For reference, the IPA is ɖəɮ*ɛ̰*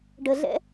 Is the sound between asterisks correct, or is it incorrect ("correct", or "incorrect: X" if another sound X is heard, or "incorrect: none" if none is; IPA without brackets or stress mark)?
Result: correct